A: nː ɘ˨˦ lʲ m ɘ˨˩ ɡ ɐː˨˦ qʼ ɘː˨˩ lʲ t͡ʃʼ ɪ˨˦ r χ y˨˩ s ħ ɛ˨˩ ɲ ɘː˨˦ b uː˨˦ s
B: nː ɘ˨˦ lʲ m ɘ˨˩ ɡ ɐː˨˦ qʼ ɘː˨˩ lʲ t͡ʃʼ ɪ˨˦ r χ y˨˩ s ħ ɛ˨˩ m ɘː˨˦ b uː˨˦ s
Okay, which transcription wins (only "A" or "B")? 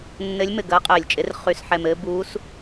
B